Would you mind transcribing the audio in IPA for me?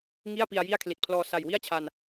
ŋ i˥˩ a̯ p i˧ a̯ j i˥˩ a̯ kʰ l i˨˩ t̚ pʰ l ɔː˧ s a˨˩ j w i˥˩ a̯ t͡ɕʰ a˧ n

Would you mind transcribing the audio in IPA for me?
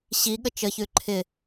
ɕ i ɠ ə t͡ʃ ə ç ʉ ǃʰ ɪ

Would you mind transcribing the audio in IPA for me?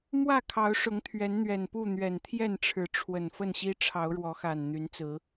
m w ä˥˨ kʰ ɑ˨˦ ʊ̯ ʂ ʊ˨˦ ŋ t̪ʰ ɥ ɛ˨˦ n n̪ ɥ ɛ˨˩ n p u˥˨ n̪ ɥ ɛ˨˩ n t̪ʰ j ɛ˥˨ n ʈ͡ʂʰ ɻ̩˨˦ ʈ͡ʂʰ w ə˨˩ n f ə˥˨ n ɕ i˦ ʈ͡ʂʰ ɑ˨˦ ʊ̯ ɻ w ɔ˨˦ x a˨˩ n n̪ y˨˦ n t͡s ɹ̩˨˦

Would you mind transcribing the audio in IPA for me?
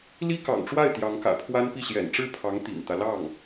l i˥ k ɑ̰˨˩ ŋ ʈ͡ʂ w a˥˩ ɪ̯ t̪ j ɑ˧˥ ŋ k ä̰˨˩ pʰ w a˥ n p i˥˩ ɕ j ɛ̰˨˩ n ʈ͡ʂ ɻ̩˥˩ pʰ ɑ˧˥ ŋ t̪ ḭ˨˩ ŋ t̪ ä˦ l ɑ˥˩ ŋ

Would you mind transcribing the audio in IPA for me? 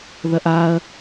ð ɐ ʔ a ɐ̯

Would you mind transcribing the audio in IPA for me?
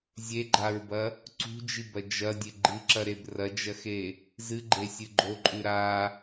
zʲ e ɡ͡ǃ a ɹ b ɐ | ǀ ṳ d͡ʒ i b ɐ d͡ʒ ɐ dʲ e ɡ͡ǃ ɨ ǁ ɐ ɾ e b r ɐ d͡ʒ ɐ x e | z ɨ ɡ͡ǃ e sʲ ɨ ɡ͡ǃ o ǃʼ ʉ ɾ a

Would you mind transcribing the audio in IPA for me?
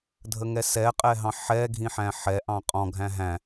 dʱ ə ŋ ɛ s ɛ qʼ ɛ ɦ ɑ̃ ħ ɛ ɡʱ ĩ ħ æ̃ ħ ɛ ʔ ɑ̃ qʼ ɔ̃ ɡʱ æ̃ ɦ æ̃

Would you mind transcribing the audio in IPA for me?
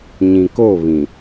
ɲ ĩ˨ k o˦˨ β ĩ˨

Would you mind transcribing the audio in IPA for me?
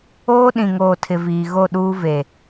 oː˦ ɗ ĩ˨ ŋ oː˨ tʰ ɪ˨ v iː˨ ɣ o˦˨ ɗ uː˦ v e˨

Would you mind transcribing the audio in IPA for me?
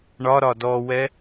ɳ ɒ ɾ ɒ d ɔ w ɛ

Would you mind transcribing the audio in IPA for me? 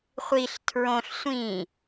χʷ i ɬ tʰ ɹ õ ɬ sʷ ĩ

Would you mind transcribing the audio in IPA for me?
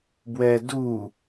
b w ɛ d u

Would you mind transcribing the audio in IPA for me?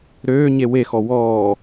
ɾ øː ɲ e w e x ɔ w ɔː

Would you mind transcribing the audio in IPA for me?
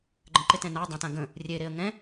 ɡ͡ǃ ə̃ ǃ ɪ t ɛ̃ n a dˤ ɛ̃ t ã ɡ ə̃ | rʲ e ɾ e ə̯ ŋ ɛ̃

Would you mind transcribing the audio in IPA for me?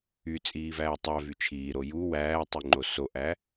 y t͡sʼ iː v æː tˤ æ v y t͡ʃʰ iː ɾ o j u w æː tˤ y ŋ͡ǃ o s o ʔ æ

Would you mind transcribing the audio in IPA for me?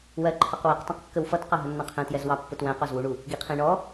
w ɜ ǃʰ ʌ q w ɛ q tˤ ɛ̃ q kː ə w f ʌ t q ɑ ɦ ə nː ɑ̃ qʰ ɛ̃ t j ɛ z w ɑ pː ʊ t w æ̃ q ɔ z w u ɳ u | ɡ i qʰ ĩ ɳ ɔ

